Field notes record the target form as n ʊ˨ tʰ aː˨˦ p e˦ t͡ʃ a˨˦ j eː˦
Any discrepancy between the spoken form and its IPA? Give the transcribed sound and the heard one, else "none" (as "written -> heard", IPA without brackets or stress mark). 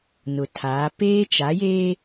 e˦ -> eː˦